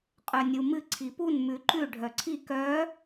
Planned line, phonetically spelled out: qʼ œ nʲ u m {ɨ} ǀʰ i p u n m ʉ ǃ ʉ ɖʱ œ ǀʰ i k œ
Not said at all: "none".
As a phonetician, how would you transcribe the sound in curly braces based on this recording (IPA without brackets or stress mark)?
ɨ